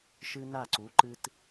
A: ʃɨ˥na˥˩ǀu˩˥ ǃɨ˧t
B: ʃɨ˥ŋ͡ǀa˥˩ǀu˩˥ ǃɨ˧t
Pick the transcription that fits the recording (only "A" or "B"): A